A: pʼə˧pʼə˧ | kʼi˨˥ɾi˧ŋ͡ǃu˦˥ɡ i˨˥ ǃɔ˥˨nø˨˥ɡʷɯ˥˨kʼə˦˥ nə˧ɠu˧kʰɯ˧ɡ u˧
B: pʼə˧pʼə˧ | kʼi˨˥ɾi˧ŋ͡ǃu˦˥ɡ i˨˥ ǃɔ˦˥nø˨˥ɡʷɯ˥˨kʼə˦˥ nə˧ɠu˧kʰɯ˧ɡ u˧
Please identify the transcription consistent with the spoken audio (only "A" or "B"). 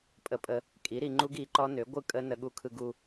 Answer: B